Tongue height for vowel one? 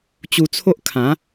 high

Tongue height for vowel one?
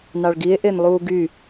low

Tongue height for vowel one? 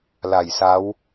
low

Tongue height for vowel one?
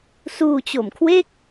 high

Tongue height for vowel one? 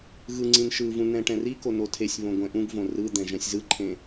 high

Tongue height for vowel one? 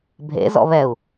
mid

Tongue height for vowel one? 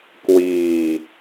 high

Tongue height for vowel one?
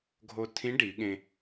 mid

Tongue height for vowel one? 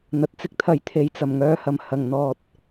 low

